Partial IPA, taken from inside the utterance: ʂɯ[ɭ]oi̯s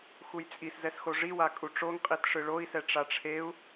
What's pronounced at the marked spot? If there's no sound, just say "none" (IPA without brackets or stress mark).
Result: ɭ